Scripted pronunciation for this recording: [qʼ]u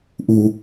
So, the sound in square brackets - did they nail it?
no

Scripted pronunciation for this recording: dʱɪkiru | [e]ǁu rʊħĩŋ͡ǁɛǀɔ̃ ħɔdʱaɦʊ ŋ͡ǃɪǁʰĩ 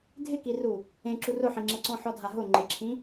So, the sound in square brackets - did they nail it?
no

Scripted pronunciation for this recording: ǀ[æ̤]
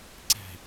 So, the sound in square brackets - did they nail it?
yes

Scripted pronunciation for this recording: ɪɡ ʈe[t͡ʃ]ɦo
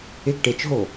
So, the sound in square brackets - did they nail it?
yes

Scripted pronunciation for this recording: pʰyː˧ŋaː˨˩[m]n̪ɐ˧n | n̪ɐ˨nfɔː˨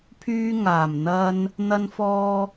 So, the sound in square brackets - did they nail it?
yes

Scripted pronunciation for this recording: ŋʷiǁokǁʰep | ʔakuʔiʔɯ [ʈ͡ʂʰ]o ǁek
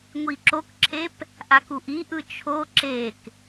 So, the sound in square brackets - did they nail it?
no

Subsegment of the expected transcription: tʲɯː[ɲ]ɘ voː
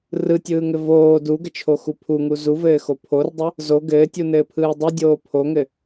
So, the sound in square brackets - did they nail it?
no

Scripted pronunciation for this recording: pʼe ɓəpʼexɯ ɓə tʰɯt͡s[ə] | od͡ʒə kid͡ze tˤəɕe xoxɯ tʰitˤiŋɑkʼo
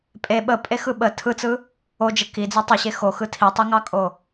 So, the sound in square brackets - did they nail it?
no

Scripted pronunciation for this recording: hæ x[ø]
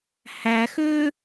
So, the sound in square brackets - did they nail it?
yes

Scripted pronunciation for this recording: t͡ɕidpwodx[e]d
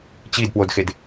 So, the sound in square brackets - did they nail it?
yes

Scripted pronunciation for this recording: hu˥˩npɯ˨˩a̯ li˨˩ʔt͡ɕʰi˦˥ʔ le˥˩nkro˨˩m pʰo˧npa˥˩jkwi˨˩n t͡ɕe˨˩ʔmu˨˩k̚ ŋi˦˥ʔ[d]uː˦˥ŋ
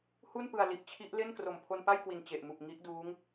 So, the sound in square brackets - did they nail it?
yes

